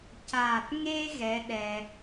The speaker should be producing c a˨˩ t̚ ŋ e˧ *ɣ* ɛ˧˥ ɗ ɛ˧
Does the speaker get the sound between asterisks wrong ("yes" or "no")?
no